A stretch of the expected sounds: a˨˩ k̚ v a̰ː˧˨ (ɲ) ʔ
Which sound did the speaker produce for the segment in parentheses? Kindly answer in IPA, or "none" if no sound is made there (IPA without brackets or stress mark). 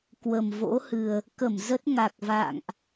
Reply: ŋ